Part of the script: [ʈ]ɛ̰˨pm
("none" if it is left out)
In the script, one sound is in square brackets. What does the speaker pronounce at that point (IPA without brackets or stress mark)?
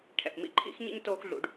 ʈʰ